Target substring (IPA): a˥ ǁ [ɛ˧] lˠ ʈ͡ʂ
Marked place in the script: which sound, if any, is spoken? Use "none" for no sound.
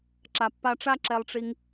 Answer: ɛ˧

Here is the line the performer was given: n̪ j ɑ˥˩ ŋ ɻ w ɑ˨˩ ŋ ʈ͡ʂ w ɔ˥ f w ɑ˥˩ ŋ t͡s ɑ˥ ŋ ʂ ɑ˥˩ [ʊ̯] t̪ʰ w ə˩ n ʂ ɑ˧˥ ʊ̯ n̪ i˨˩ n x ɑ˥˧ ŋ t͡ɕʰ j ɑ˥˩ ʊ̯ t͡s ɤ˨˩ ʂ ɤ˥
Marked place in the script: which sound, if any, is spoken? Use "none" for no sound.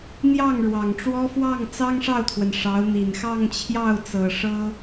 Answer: ʊ̯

